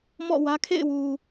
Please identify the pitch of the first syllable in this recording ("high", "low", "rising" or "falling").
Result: falling